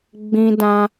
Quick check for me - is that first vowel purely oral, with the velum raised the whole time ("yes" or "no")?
no